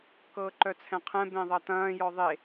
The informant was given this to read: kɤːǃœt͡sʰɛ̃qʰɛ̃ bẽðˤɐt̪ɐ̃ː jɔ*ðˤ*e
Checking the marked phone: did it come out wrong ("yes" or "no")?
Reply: no